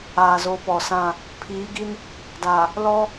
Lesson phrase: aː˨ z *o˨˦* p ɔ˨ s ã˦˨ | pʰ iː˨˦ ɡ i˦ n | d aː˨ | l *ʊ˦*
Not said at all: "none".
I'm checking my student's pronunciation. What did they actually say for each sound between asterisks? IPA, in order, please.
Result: o˨˦, ɔ˦

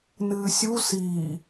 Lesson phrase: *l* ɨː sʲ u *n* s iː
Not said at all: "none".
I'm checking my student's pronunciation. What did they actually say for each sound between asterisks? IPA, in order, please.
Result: n, none

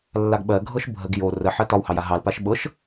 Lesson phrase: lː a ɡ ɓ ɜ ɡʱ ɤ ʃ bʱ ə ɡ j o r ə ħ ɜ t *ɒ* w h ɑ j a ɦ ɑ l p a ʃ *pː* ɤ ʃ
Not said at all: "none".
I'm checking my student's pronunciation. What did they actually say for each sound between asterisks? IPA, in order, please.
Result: ɒ, ɓ

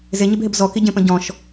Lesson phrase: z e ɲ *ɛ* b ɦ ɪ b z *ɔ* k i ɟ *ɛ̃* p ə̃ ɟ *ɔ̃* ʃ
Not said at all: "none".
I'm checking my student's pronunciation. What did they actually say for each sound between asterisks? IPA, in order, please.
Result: ɪ, ɔ, ẽ, ɔ̃

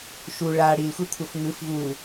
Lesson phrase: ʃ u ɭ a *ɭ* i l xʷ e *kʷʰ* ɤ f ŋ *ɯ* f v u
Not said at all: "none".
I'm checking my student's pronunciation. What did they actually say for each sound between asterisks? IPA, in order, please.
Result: ɽ, kʷʰ, ɯ

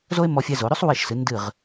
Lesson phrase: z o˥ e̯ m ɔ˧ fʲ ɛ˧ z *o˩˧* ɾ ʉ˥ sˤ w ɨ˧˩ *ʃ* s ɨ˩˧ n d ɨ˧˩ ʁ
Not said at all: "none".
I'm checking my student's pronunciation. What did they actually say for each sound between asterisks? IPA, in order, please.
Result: o˩˧, ʃ

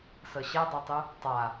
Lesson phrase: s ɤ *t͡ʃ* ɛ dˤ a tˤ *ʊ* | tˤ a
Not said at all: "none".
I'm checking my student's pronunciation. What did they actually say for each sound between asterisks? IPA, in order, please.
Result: ɕ, u

